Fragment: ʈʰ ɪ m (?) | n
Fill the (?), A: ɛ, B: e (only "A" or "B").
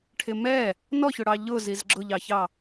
A